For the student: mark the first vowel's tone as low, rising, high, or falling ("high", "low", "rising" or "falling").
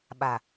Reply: low